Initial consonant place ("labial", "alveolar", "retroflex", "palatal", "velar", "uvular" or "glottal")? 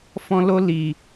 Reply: labial